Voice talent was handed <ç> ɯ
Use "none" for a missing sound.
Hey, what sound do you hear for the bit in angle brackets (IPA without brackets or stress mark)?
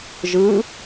ʒ